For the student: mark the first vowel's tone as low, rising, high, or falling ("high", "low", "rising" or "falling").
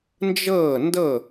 falling